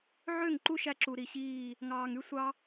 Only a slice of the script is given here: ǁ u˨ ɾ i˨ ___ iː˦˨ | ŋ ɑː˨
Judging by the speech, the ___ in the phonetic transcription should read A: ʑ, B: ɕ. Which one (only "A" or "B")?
B